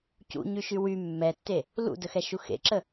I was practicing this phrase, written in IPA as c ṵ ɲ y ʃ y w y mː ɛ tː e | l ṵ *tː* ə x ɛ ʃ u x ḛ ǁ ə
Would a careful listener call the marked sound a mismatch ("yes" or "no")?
yes